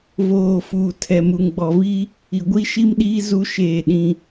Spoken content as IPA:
v oː˨ f uː˨ tʰ ɛ˨ m u˨ ŋ ɡ͡b ɔ˨ v iː˦ | i˨ ɡʷ i˦ ʃ i˦ m ɗ iː˦ z u˦ ʃ eː˦˨ ɗ ĩ˦

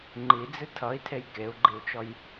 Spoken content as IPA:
ŋ͡ǃ i d͡z ɨ tʰ ʌ i̯ tʰ e j k e u̯ ɡ͡ǃ i u̯ t͡ʃ ɔ j

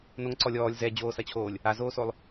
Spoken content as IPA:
n o ŋ ǀ ɔ lʲ ɔː lʲ z ɛ d͡ʑ oː s ɐ t͡ɕʰ oː lʲ | a z oː s o lˠ

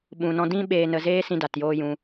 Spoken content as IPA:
ɓ ũ˨ n ɔ̃˧ d ĩ˧ ɓ eː˨ n ə˨ z eː˧ s ĩ˦ d a˨ t j oː˦ j ũ˧

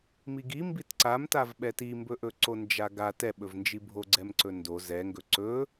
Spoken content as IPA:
m i ɡ i m b i t ǀ a m t a v ɓ ɛ t i m b ɵ ʔ ɵ ǀ o n d͡ʒ a ɡ a t ɛ ɓ ɵ v n d͡ʒ i bʱ o ɡ͡ǀ ɛ m ǀ ɵ n d o z ɛ ŋ ɡ ɵ ǀ ɵ

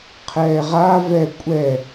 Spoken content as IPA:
qʰ ɛː ʁ a v ɛ kʷʼ ɛ

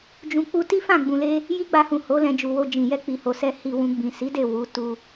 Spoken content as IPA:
d͡ʒ ũ˧ k͡p u˧ t i˦ f ã˦˨ ɡ͡b ũ˧ l e˦ | j i˦ ɡ͡b a˧ h ũ˨ h o˨˦ l ɛ̃˧ d͡ʒ u˨ w o˧ d͡ʒ ĩ˨ j ɛ˧ k͡p i˨ h o˨ s ɛ˧ h i˧ w ũ˧ ɡ͡b ĩ˨ s i˨˦ d e˦˨ w u˨˦ t u˧

